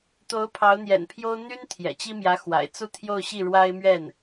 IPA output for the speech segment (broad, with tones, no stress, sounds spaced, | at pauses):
t̪ o˧˥ ʊ̯ pʰ ɑ˧˥ ʊ̯ n̪ j ɛ̰˨˩ n pʰ j o˥ ʊ̯ n̪ y˥ n t̪ʰ j ɛ̰˨˩ t͡ɕ i˥ m j ä˧˥ x w a̰˨˩ ɪ̯ t͡s u˥˧ t̪ʰ j o˥˧ ʊ̯ ɕ i˥˩ ɻ w a˥ ɪ̯ m ɥ ɛ˥˩ n